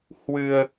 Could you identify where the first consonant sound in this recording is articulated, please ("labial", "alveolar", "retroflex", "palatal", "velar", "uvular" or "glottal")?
glottal